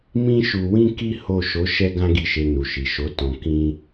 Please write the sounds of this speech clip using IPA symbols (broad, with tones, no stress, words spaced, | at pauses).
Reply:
mĩ˦ʃu˧wĩ˦ ki˦ho˦˨ ʃo˨˦ ʃɛ˦ɡã˦ɡi˦˨ʃe˧ nu˨ʃi˨ʃo˨˦ tɔ̃˧kĩ˦